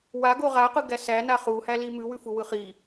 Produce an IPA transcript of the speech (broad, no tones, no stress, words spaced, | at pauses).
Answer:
waɡo ʁaqɯɡæ sæna χuhæli mʉwʉfuwɯ χi